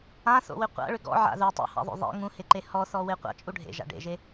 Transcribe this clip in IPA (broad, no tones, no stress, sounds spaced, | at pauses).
ã θ o̰ w ʏ qʷ a̰ ɭ ʏ ɡ ɔ̰ ʕ a̰ ð u tˤ ṵ h a̰ ðˤ o̰ ðˤ ḛ ŋ ũ h e ǃ e h ɔ θ ɔ w e qʷ a̰ t͡ʃʼ u ɖʱ ḛ ʒ a̰ ɖ ḛ ʒ e